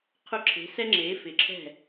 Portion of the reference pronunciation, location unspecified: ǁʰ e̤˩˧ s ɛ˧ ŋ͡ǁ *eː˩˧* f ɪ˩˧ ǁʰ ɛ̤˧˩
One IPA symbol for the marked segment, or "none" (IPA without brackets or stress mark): eː˩˧